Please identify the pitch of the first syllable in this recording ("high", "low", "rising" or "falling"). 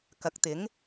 rising